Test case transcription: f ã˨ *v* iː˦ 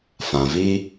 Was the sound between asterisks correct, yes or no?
yes